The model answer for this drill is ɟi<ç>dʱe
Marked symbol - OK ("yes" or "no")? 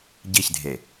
yes